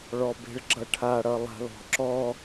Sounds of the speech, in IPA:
ɭɔbe̤ɭɡ͡ǁʌʈʰa ɽʌlˠa̤lɔ̤ǁɔ

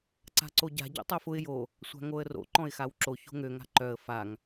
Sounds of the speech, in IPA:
ǀa̤ǀoɟa̤ ɟo̰tˤofʊɪ̯ jo | sʷa̤ŋoə̯ro̰ ǃɔ̃ɪ̯xawǁo ço̤ŋø ŋa̤ǃœə̯ faŋ

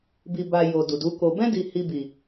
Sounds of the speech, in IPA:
bi˨ba˨ jo˨ du˨du˨˦ko˧ bɛ̃˧di˨ hi˧bi˨

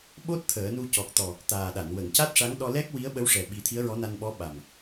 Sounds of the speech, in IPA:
ɓo˦˥t̚ t̪ʰəː˨˩˦nu˧ cɔ˨˩k̚ t̪ɔ˨˩ | t̪aː˨˩ɗa˨˩˨n wə˨˩˨ŋca˦˥t̚ʂa˧˥ŋ ɗɔ˧ lɛ˦˥k̚wi˧˥ə̯ ɓə˧˥wʂɛ˨˩ɓi˨˩˦ t̪ʰi˧˥ə̯ɹɔ˧˥na˧nɓɔ˧˥ ɓa˨˩m

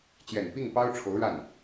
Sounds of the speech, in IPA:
t͡ɕjɛ˨˩n pi˥˩ŋ pɑ˥ʊ̯ʈ͡ʂʰo˧˥ʊ̯ɻa˥˩n

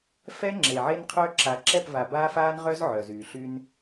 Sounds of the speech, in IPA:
fɛ˦ ŋ͡ǁe˨ʕe˦nqʰœ˦ ǁa˨ǁɛ˦˨pva˨ baː˦faː˦nʁœ˦z ʕœ˨ zyː˨ɬy˦n

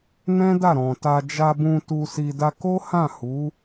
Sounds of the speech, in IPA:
nɛ̃˦da˦˨ɾɔ̃˨ta˧ d͡ʒa˧bũ˧ tu˧si˧ da˧ko˦hã˦˨ hu˨˦

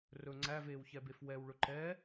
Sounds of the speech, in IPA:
rɵ ŋ͡ǀæveːwçɛbef wɛw ɭɵǃɛː

